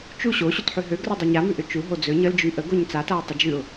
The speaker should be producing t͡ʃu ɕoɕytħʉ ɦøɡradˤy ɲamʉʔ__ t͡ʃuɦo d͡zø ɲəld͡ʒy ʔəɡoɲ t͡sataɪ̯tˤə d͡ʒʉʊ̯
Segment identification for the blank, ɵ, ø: ø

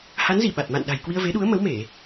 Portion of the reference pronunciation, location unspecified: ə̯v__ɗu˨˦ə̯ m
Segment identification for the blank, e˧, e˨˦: e˨˦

